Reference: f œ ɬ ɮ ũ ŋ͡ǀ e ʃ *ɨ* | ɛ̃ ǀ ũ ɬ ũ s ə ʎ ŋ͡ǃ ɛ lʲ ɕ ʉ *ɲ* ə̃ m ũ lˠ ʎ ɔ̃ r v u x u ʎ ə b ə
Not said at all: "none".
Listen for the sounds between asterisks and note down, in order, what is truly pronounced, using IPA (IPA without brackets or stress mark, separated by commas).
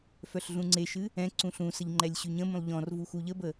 ɨ, ɲ